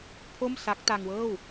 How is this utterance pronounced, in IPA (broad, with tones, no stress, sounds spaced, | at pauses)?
pʰ o˥˩ m s a˦˥ k̚ t a˧ ŋ w ɤː˥˩ w